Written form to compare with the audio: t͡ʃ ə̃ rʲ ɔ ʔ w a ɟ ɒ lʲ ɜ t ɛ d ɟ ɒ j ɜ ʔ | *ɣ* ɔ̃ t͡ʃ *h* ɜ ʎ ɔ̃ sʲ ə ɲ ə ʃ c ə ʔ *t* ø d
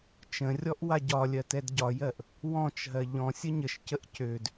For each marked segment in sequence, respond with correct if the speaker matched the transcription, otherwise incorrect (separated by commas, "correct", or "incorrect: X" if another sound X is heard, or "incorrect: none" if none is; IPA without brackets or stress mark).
incorrect: w, incorrect: ɦ, incorrect: c